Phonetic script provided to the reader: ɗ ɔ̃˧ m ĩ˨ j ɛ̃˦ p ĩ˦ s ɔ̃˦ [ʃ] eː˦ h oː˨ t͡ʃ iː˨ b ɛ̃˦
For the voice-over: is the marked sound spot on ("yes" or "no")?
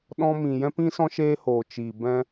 yes